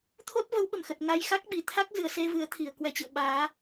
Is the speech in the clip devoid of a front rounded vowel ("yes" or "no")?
yes